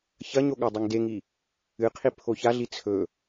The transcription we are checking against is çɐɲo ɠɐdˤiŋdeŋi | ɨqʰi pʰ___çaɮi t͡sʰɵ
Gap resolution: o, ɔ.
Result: o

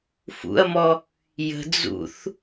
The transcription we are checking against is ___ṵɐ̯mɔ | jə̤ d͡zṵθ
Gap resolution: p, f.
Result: f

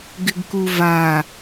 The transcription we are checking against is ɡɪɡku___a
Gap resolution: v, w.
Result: v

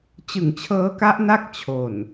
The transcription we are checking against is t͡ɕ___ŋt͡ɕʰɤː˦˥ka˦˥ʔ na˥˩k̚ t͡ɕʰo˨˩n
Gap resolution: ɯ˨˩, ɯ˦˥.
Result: ɯ˨˩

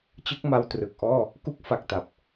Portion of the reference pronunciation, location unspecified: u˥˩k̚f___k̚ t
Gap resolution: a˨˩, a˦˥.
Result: a˨˩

